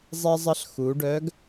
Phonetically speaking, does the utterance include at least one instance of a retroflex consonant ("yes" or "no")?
yes